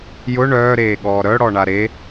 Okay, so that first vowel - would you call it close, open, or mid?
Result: close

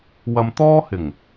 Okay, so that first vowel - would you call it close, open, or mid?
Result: open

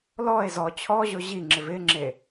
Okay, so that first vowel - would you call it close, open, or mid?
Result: mid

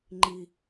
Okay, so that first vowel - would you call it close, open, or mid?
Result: close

